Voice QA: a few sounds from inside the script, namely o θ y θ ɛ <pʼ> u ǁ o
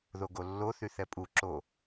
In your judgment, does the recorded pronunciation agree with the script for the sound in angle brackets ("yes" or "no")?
yes